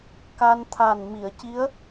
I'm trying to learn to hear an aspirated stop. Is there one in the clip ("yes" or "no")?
yes